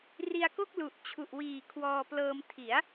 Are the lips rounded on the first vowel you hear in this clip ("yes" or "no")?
no